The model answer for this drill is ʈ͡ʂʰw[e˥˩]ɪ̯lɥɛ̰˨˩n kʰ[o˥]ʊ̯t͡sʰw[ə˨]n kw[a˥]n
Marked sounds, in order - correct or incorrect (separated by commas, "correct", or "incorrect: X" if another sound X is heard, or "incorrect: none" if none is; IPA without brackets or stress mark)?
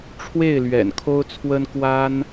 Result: correct, correct, incorrect: ə˥, correct